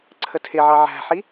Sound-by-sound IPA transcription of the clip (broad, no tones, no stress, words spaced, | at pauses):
ǀʰətʰɪʕɑ ʕæ̤ħi